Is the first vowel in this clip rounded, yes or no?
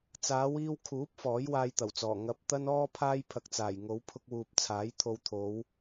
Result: no